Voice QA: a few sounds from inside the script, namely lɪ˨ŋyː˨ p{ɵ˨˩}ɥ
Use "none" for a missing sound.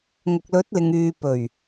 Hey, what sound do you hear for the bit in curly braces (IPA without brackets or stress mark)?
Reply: ɵ˨˩